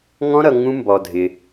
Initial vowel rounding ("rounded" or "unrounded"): rounded